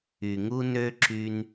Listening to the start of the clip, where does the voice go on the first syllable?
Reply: low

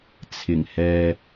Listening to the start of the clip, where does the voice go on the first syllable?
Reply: low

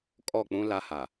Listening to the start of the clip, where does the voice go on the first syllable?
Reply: falling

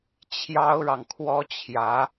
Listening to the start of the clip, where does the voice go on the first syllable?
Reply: high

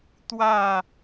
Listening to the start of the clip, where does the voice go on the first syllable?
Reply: falling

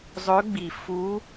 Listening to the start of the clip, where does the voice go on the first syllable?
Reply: rising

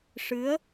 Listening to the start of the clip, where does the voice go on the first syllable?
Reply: rising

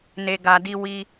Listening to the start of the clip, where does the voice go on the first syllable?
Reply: low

